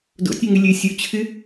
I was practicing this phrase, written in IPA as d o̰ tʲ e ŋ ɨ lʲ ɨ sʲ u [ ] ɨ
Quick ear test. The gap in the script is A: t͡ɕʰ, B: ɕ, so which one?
A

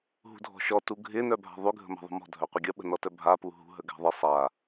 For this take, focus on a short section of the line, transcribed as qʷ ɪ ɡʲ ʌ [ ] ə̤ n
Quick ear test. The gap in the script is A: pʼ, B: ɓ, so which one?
B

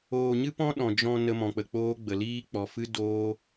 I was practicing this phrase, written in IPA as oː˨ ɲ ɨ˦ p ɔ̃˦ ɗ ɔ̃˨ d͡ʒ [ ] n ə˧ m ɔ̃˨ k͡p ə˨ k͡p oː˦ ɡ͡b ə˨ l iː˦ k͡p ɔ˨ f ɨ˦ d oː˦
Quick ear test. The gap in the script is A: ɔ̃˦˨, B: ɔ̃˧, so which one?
B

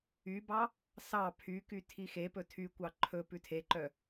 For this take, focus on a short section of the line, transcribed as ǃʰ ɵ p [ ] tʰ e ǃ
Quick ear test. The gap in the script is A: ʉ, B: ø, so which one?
A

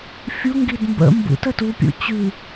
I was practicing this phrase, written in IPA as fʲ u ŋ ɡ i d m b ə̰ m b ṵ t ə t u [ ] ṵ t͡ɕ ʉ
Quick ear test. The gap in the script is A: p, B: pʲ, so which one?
B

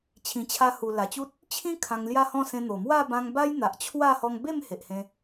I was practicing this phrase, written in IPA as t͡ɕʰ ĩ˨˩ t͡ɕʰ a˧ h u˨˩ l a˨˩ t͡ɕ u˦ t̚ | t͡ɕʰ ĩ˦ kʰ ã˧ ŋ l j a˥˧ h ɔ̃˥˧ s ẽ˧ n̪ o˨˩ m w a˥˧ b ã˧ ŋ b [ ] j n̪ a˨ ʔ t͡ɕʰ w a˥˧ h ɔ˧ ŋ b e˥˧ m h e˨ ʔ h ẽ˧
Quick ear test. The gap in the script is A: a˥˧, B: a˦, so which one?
B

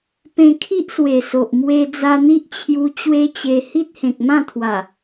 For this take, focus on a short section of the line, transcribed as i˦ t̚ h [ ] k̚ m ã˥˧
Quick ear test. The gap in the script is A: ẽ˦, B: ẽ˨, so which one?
B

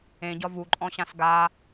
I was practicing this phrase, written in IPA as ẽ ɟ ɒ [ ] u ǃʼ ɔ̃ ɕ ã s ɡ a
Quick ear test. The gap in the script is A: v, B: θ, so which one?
A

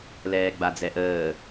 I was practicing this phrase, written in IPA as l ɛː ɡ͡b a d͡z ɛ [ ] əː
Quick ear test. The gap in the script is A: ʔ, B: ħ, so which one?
A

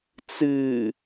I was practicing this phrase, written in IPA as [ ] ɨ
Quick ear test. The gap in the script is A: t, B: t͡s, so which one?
B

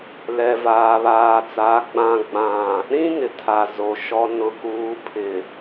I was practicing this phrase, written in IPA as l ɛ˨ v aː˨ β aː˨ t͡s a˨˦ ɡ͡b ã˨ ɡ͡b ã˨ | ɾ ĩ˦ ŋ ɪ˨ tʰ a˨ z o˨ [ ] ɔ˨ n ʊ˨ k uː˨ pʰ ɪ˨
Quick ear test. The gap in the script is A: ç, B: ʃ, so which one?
B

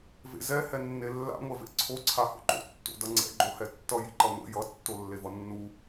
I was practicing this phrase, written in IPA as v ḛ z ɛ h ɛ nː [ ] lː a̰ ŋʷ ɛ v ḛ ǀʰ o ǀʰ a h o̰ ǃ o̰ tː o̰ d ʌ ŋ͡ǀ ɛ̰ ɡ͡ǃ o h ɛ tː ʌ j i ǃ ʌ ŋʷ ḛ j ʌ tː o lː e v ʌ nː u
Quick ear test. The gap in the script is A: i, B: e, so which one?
B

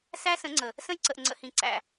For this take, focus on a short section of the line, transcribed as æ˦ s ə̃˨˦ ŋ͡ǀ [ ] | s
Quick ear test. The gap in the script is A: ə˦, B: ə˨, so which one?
B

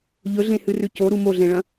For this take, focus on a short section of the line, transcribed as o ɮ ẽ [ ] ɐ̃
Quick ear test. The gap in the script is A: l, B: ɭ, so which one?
B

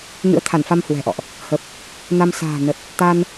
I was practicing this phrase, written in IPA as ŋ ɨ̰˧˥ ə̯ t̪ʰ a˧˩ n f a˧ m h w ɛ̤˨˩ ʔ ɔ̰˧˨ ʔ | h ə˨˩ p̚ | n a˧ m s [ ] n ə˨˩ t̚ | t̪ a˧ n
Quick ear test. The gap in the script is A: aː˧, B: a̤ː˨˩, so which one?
B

